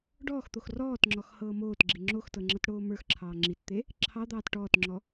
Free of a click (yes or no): no